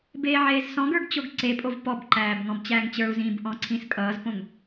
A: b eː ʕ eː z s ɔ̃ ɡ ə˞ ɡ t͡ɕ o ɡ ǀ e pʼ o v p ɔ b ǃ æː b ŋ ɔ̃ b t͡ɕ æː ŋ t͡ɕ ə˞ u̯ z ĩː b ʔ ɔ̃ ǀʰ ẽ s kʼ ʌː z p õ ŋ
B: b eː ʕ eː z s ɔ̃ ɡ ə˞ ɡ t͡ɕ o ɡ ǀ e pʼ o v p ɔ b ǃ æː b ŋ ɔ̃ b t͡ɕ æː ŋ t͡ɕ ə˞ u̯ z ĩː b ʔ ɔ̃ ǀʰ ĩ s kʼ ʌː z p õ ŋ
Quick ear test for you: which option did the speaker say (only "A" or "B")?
B